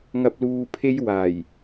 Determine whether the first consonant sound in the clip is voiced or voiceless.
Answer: voiced